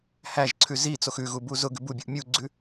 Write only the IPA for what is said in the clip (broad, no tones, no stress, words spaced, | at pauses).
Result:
hæʒǀʰʉ zit͡sox ʉɣubu zʊɡʉ bubʲuʔ mʲuɡ͡ǀʉ